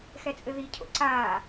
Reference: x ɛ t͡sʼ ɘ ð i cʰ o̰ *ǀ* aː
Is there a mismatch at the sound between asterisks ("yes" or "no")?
no